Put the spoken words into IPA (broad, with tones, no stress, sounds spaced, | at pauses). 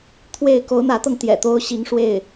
t̪ʰ w e˥˩ ɪ̯ k o˧˥ ʊ̯ n̪ ä˧˥ t̪ ɤ˧ ŋ t̪ j ɛ̰˨˩ t̪ o˥ ʊ̯ ɕ i˧˥ ŋ ʂ w e˥˩ ɪ̯